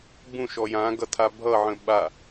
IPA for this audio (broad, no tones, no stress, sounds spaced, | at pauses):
b ũ ʃ ɔ j ã ɡ ʌ tʰ a bʱ ʌ ʕ ə̃ ɓ a